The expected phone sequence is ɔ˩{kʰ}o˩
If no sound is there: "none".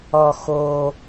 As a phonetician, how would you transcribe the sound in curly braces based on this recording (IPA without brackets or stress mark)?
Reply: x